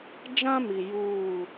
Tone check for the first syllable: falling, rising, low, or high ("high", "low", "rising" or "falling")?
high